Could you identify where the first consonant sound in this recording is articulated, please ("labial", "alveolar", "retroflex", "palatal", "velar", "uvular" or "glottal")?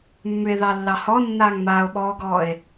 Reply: labial